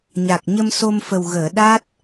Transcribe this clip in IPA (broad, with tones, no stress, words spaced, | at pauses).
ɲa˨˩k̚ɲə˧mso˧mfə˨˩w ɣəː˨˩˨ ɗa˦˥t̚